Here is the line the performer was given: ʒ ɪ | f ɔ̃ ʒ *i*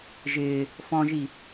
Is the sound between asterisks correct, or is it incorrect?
correct